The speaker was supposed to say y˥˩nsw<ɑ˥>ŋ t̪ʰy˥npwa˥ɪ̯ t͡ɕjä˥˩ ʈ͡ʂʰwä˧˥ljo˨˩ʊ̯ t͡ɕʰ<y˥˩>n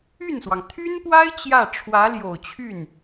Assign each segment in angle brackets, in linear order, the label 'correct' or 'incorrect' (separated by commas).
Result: incorrect, correct